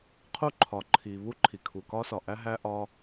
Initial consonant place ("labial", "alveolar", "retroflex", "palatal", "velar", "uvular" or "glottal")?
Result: uvular